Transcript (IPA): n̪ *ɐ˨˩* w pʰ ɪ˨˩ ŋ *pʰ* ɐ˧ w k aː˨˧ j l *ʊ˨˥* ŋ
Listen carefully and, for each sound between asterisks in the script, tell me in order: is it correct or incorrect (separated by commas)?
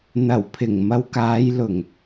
correct, incorrect, incorrect